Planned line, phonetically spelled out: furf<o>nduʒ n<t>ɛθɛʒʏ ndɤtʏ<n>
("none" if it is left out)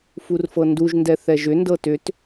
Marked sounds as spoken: ɤ, d, t

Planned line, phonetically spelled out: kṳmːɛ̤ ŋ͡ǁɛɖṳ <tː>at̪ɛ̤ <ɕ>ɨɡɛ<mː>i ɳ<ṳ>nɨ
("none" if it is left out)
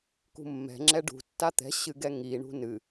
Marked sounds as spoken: tː, ɕ, ŋ, ṳ

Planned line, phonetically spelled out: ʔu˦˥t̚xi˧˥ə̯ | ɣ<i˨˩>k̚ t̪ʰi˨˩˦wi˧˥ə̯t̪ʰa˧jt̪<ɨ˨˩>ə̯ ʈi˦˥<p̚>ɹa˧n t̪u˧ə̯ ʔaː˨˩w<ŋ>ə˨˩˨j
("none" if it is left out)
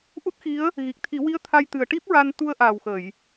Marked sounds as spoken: i˨˩, ɨ˨˩, p̚, x

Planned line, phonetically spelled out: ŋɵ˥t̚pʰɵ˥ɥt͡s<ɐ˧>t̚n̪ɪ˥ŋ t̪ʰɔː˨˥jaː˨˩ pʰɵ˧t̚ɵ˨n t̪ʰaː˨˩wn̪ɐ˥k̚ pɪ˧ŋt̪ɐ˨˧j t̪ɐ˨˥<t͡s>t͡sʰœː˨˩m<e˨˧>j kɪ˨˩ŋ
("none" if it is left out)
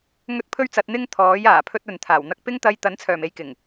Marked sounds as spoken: ɐ˧, n, e˨˧

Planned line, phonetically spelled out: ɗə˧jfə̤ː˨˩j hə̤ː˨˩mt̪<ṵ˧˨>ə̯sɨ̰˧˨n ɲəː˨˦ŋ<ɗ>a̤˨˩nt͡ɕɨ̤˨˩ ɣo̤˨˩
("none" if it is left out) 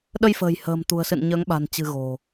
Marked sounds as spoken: ṳ˨˩, ɓ

